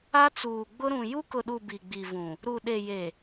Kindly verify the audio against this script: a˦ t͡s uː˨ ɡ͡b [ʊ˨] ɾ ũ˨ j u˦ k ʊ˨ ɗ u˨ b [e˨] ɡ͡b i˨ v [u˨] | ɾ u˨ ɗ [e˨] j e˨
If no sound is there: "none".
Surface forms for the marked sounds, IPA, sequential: ʊ˦, i˨, ũ˨, e˨

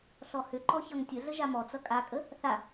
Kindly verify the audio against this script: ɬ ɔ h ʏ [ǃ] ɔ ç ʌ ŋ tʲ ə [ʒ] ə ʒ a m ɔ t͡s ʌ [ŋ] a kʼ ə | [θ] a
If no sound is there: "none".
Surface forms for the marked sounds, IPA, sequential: ǃ, ɮ, kʼ, θ

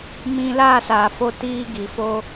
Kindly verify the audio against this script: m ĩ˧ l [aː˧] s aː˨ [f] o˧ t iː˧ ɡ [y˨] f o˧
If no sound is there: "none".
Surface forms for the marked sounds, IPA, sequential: aː˦˨, f, i˨

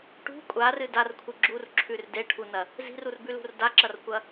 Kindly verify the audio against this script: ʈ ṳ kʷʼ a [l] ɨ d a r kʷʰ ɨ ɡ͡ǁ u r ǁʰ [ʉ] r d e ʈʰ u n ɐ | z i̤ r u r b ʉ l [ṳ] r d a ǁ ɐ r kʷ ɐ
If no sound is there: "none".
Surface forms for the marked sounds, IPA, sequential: r, ʉ, ṳ

